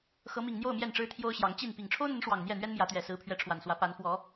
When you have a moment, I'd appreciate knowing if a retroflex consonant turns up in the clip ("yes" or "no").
yes